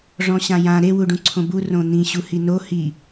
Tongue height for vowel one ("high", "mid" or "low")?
mid